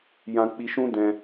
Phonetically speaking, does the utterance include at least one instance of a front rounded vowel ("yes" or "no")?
no